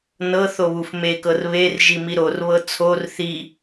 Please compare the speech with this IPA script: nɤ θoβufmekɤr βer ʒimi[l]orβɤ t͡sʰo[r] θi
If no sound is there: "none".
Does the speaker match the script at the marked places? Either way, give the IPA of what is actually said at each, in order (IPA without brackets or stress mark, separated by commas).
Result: ɾ, r